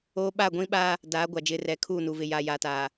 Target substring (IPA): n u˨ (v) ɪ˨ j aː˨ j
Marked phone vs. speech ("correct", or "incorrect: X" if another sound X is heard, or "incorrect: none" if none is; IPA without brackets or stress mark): correct